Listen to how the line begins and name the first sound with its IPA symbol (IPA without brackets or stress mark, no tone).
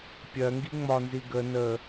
pʲ